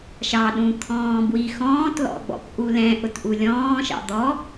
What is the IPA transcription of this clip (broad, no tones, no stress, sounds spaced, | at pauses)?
ʃ ɑ ɗ ũ t̪ʰ ɔ̃ː b w i x ɔ̃ː t l ɔ̰ ɡ͡b ɔ̰ k ʔ u l ɛ̃ ʔ ʊ t ʔ u lʲ ɔ̃ː ʃ ɑ̰ d̪ ɔ